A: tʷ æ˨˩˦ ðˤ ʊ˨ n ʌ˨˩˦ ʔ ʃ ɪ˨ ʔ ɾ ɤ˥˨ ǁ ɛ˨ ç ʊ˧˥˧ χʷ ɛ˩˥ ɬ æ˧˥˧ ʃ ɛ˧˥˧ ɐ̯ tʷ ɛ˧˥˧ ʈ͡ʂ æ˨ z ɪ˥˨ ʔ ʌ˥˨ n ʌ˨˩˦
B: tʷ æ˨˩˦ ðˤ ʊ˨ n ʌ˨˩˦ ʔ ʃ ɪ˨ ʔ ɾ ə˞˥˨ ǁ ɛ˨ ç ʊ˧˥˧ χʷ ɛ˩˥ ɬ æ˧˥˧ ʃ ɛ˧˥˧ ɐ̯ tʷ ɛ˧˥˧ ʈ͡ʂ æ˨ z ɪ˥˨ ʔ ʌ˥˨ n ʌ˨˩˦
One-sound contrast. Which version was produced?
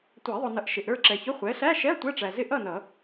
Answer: B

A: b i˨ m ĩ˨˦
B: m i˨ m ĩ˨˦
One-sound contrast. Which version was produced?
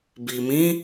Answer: A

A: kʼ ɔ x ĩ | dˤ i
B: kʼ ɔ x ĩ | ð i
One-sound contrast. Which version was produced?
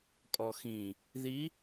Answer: B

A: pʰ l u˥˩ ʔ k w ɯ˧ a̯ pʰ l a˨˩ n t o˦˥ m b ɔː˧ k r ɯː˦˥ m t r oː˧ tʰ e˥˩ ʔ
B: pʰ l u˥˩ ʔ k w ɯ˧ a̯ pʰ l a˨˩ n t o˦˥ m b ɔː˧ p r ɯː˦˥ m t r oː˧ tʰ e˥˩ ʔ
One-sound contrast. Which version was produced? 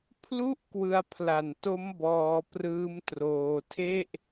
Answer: B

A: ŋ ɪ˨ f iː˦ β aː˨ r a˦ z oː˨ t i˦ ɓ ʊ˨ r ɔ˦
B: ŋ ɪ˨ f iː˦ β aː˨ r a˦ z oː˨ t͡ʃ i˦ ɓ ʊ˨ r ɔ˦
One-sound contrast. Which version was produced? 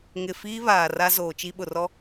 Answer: B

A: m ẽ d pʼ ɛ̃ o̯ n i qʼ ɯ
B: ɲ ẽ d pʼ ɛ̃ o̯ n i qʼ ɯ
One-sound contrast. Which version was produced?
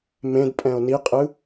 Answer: A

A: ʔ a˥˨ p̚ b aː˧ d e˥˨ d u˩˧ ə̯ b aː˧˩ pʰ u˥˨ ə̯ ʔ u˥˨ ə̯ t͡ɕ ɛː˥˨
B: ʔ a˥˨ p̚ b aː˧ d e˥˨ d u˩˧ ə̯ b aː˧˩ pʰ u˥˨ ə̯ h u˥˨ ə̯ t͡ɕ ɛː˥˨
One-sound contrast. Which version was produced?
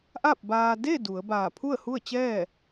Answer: B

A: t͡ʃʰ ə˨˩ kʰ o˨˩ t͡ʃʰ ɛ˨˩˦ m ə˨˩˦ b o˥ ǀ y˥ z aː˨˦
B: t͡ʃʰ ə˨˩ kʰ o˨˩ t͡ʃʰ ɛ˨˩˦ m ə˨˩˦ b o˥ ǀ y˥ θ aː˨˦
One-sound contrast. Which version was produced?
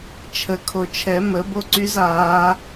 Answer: A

